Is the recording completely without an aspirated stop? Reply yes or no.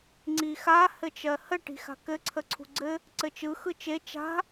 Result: no